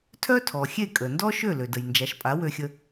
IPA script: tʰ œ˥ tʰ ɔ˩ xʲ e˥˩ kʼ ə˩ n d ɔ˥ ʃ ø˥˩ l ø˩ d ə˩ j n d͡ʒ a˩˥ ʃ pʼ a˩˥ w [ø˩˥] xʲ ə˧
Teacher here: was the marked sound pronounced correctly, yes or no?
no